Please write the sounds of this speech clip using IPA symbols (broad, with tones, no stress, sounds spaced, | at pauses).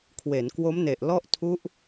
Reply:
kʰ w e˩˦ n k w o˦˥ m n e˨˩ ʔ l ɔ˥˩ ʔ tʰ u˦˥ ʔ